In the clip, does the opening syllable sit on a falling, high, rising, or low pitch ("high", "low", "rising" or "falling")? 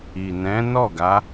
low